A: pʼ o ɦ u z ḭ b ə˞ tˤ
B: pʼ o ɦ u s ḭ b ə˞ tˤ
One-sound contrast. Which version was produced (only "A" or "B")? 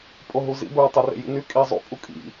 A